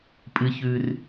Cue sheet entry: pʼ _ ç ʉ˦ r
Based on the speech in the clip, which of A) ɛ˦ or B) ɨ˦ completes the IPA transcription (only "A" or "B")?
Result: B